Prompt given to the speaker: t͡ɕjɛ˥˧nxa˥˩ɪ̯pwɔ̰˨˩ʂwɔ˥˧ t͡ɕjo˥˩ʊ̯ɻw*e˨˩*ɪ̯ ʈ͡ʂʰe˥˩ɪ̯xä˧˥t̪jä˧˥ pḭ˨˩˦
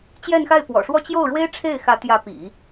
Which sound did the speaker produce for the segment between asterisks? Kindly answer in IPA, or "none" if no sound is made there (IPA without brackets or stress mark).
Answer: e˥